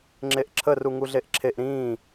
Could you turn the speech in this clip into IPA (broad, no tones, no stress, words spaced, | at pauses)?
ŋ͡ǁeʔǁʰə ruŋuɮeʔǁʰeʔ ɾĩː